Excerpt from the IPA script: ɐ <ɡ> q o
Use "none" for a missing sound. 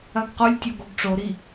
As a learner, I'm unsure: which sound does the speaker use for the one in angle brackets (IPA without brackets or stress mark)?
ɡ